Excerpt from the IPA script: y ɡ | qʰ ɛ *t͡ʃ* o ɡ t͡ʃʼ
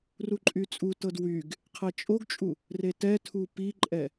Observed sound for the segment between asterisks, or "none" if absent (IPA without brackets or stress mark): t͡ʃʼ